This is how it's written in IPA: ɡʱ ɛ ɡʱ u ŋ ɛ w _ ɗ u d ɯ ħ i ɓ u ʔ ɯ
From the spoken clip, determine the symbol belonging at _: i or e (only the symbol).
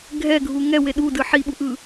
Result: e